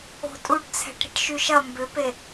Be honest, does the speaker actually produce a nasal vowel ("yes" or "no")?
no